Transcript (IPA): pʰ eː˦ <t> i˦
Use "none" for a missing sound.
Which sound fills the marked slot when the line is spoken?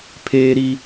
ɾ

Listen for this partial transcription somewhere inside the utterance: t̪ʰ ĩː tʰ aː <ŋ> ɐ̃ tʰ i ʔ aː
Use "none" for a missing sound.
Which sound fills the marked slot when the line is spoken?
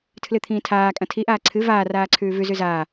kʼ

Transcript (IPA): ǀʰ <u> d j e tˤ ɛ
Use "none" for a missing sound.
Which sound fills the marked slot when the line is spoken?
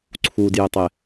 u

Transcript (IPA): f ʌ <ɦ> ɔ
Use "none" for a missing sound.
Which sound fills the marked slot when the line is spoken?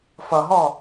ɦ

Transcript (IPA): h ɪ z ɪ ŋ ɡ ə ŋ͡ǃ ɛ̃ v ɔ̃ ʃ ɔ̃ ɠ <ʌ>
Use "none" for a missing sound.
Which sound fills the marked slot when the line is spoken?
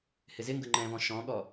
ɔ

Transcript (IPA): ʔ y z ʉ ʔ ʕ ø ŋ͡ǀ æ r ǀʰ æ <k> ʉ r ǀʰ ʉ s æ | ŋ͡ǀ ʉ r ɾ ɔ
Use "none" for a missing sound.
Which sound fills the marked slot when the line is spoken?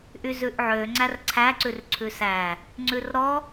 ǀ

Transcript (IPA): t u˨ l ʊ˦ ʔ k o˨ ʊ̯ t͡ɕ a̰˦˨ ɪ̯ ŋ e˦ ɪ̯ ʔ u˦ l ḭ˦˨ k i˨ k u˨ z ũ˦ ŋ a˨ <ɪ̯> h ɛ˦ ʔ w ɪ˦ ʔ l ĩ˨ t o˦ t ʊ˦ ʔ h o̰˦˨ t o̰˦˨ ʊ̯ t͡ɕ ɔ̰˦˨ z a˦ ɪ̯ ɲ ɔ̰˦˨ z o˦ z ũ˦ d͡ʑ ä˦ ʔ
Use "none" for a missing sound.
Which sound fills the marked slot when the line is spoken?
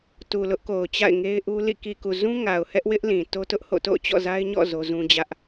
ʊ̯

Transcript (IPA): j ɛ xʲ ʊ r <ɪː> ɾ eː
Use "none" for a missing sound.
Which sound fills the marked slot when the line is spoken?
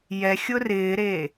ɪː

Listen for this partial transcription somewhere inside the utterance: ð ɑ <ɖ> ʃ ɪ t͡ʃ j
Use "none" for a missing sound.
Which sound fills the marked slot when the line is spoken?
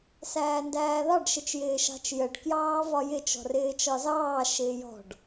ɖ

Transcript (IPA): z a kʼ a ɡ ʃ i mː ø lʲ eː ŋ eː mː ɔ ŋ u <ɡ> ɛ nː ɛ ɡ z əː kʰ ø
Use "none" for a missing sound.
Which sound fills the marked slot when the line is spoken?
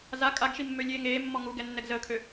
ɡ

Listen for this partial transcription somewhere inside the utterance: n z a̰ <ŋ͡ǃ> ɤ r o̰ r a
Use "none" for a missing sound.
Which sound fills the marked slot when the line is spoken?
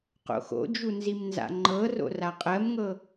ŋ͡ǃ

